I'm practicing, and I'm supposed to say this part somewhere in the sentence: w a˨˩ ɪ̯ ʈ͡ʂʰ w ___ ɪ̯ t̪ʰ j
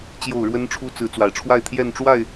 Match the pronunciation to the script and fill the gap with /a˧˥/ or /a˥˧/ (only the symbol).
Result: a˥˧